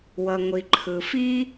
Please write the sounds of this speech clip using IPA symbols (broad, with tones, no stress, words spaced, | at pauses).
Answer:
wʌ˩ŋʷi˩ ǃʰɯ˩fi˥